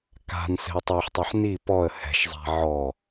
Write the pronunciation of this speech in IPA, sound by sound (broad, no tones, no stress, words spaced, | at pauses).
ka̤n sɛ̤ə̯tˤoħtˤeħ ni pɔə̯ hɛ̤ʃzˤa̤ ʕɔ